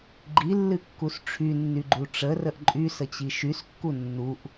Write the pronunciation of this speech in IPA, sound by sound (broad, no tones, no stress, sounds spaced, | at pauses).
ɡ͡ǃ i lː ɨ kː u s ʈ͡ʂʰ y nː y ɡ͡ǃ u ʈ͡ʂ ə r ə ʔ ǃʼ y s ə t͡ɕ i ʃ y s kː u nː u ʔ